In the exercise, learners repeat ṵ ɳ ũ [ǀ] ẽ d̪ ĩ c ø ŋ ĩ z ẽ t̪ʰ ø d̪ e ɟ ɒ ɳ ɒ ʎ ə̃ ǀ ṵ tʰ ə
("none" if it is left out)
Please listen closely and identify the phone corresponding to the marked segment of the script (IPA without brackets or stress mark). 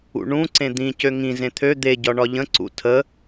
ǀ